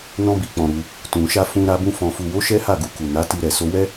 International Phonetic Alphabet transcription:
nɔ̃˧bi˨k͡pɔ̃˨ ɾu˧ | tũ˨ʃa˧ fũ˧ɾa˧bũ˧ fɔ̃˨fu˨wo˨˦ ʃɛ˦ha˦˨ɡu˧ ku˨na˨˦ti˧ɾɛ˨ so˧wɛ˦

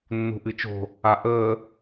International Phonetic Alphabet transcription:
nːṳʔɨt͡ʃo̤ | aʔəː

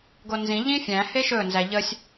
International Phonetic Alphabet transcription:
ɡonzĩ ʎĩfʲæ̃ heʃɵ nzæʎəsʲ

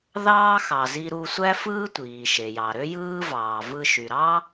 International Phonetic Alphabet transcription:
ðɑː˥xɑ˩zi˧ ɾu˧sʷæ˥fɯː˥ tʷiː˩ʃe˩jɑ˩ ɾø˥jɯː˥vɑː˩ vɯ˧ʃy˩ɾɑ˥

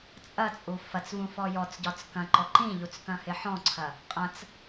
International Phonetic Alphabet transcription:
t͡sʼɐt͡sʼu fɐt͡svũfɔ jɔt͡sɟɒt͡s kɐ̃ǃɔ ǃĩʎut͡skɐ̃hɪ ħɔ̃ǀʰɐ | qʼɐ̃t͡s

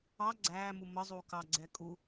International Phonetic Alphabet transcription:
ɑ ɡ͡ǀæːmu məzˤu kɑ ɡ͡ǀɛkʼu

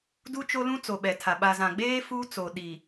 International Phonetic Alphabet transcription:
du˦t͡ʃo˦lũ˦ t͡so˨ɓɛ˨tʰa˨ ɓa˨zã˨ɡ͡beː˦ fu˦t͡so˨ ɗi˨

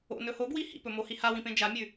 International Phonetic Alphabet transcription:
o̰nɵ hoɡwi hḭpɵmohi hawĩpẽ d͡ʒamʲʉ

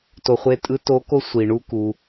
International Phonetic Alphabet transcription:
to˧ χʷe˧tʼɯ˧˥to˧˥ ko˥sʷi˩ ɳu˧ku˩

